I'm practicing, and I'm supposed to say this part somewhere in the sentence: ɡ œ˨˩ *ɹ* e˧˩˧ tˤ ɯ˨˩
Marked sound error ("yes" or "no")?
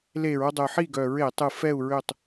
no